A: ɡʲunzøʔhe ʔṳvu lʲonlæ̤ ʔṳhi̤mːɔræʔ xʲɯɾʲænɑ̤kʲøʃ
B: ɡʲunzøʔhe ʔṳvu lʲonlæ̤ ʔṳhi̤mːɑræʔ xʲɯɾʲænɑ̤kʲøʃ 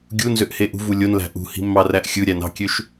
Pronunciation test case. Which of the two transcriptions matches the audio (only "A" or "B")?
B